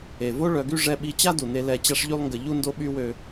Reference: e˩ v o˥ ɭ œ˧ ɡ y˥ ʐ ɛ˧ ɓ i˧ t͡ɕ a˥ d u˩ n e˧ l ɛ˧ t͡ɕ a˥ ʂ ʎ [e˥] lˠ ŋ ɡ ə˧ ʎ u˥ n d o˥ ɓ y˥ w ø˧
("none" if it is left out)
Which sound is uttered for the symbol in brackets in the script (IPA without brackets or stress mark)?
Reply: y˥